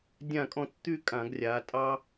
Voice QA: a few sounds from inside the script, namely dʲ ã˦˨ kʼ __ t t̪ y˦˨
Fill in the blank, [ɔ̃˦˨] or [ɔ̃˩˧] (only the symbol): ɔ̃˦˨